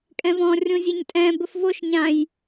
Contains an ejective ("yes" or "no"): yes